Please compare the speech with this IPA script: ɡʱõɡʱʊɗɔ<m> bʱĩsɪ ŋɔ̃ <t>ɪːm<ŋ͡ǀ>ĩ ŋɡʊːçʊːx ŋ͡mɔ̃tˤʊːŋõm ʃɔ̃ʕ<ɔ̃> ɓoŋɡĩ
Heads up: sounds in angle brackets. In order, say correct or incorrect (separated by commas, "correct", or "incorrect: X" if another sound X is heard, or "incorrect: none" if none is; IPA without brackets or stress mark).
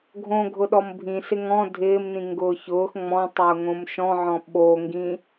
correct, incorrect: dʱ, incorrect: n, correct